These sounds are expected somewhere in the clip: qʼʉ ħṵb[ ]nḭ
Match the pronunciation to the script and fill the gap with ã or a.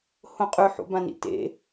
ã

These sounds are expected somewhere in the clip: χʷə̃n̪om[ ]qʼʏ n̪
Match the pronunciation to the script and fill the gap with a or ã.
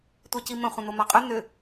a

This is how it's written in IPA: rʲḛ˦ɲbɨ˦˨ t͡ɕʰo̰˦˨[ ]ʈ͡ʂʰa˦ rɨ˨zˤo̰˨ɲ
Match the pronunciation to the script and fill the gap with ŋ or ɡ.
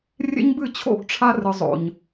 ɡ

